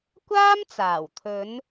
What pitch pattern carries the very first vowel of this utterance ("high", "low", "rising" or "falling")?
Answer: high